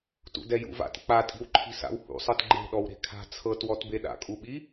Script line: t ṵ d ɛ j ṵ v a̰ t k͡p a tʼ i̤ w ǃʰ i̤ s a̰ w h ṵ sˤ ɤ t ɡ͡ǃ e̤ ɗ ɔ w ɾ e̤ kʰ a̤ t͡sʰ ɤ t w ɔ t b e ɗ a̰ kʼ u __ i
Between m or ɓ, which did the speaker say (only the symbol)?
ɓ